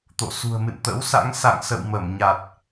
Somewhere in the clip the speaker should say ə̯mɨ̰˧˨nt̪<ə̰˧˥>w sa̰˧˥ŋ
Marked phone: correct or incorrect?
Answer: correct